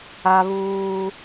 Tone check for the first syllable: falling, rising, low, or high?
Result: high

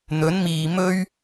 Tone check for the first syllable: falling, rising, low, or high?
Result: rising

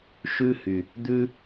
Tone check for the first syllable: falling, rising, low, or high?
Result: high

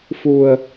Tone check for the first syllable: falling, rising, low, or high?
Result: low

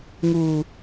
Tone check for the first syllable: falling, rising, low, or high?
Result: low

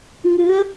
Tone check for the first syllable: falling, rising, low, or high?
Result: rising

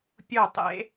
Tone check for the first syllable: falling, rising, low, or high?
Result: falling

